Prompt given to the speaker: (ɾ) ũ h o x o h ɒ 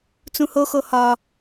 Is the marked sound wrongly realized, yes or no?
yes